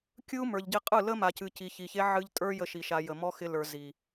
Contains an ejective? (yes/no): yes